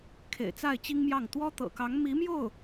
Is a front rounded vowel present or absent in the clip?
absent